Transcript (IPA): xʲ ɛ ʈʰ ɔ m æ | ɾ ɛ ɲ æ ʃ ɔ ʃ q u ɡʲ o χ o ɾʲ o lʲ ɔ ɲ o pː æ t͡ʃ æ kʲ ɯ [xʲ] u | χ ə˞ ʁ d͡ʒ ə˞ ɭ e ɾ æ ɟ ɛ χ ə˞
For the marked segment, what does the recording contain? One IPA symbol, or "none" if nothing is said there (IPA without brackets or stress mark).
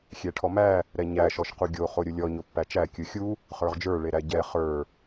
xʲ